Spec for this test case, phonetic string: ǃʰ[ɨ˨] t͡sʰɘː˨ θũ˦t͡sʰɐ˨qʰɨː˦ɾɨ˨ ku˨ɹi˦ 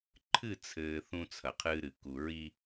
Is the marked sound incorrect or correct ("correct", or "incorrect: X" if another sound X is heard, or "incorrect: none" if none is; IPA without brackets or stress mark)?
incorrect: ɨ˦˨